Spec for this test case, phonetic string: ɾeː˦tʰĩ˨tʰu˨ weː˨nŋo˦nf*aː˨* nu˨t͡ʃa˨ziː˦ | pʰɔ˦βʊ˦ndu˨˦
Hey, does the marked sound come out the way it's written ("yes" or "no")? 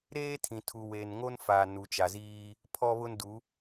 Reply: yes